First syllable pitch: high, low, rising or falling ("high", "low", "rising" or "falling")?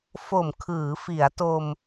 low